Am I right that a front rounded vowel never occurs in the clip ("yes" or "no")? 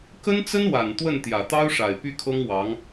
no